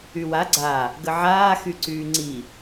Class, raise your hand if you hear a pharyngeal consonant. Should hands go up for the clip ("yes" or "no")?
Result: yes